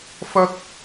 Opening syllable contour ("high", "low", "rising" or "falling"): high